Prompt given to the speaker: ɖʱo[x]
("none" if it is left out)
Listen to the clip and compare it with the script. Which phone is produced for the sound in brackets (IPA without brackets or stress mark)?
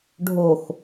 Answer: x